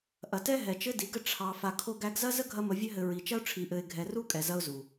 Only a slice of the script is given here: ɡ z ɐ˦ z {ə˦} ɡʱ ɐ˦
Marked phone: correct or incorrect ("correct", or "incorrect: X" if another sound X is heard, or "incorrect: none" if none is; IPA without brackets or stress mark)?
correct